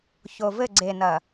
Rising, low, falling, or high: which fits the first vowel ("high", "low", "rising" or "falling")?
low